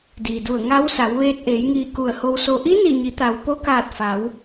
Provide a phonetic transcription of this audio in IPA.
diː˩du˧˩ə̯ ŋa˧˥wsa˩˧w ʋeː˧t̚ʔeː˩˧jŋiː˧˩ ku˧˩ə̯ho˧wso˧ ʔi˧˥ni˧˩ɲi˩˧t̪a˩w po˧kaː˧˩t̚ fa˩˧w

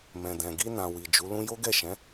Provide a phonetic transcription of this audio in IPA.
mɛ̃˨dɛ̃˨ ɡi˧nã˨ wi˨d͡ʒu˨˦lũ˦ jo˦ɡɛ˦˨ʃɛ̃˨˦

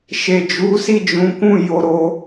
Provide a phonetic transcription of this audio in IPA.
ʃe˨d͡ʒu˨˦si˦˨ d͡ʒũ˨˦ kũ˦˨ jo˧ɾo˧

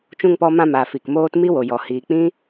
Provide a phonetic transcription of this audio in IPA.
t͡ʃũ˧ŋpɔ˧mã˧maː˨ fi˨kmoː˦t mi˦wo˨jɔ˨ hiː˨k͡pĩ˦

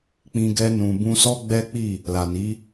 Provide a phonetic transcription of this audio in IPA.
k͡pĩ˧ɡɛ˧nũ˨ bũ˧sɔ˦ɡ͡bɛ˦k͡pi˦˨ | la˨ni˨˦

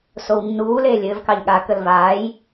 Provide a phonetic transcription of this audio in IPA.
sownːuː leːlʲɘːv kɑʎɠa kəlvaːj

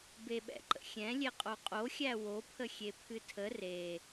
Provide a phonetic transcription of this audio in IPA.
beɓɛ̰ǃə̰xʲɛ̃ lʲeqʼoqʼoxʲæ wopʰəxʲe pʰɨtʰə re

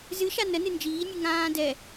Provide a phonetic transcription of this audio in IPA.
zɨʃa nənɨ nd͡ʒiːnʲɨ ŋãː dɛ

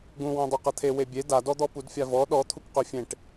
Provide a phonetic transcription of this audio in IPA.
ɡũwõ dˤoqɐt̪ʰe webʲe dadɔd̪ɔ pudfʲavɔ ɗɔt̪ʰuk qøfʲẽʈ

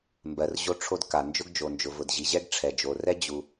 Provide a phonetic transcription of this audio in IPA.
mbɜ˩rʑo˥ʈ͡ʂʰo˥d ka˩ nd͡ʒʊ˥ɡd͡ʒo˩nd͡ʒʊ˩ vʊ˩dʑi˩ʑɛ˥ɡ ʈ͡ʂʰɛ˩d͡ʒo˩rɛ˥ d͡ʑu˩

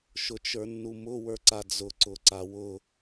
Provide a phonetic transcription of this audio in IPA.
ʃʊt͡ʃə˞nːumʊ wə˞ǀad͡zʊ ǀʊǀawʊ

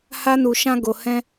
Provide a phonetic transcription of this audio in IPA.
ha˦nu˧ ʃã˦ ɡo˧hɛ̃˦

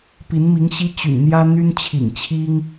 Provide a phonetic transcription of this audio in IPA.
pi˧˥nmi˧˥ŋɕi˥ t͡ɕy̰˨˩nn̪jä˥ n̪y˥nt͡ɕʰḭ˨˩ŋt͡ɕʰi˥ŋ

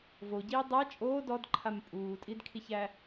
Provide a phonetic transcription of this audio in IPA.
voɟiː dˤæ t͡ʃʼoː dɔdǃʰam pʼuːtʼidkʰiçæ

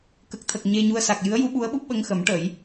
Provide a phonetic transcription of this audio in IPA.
kə˨˩k̚t̪ʰə˨˩k̚ ɲe˧ɲu˧ə̯ sa˨˩k̚ jɨ˧˥ə̯ju˧˥ɓu˧˥ə̯ɓu˦˥p̚ ɓə˧ŋxə˨˩˦m ʈə˨˩˦j

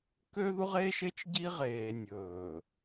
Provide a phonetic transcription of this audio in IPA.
kø˦ðu˦ʁe˦ʃe˦t͡ʃ ɟi˦ʁeː˨ nʲɵː˨

